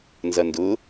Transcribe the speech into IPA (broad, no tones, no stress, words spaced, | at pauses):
nzɐndʊ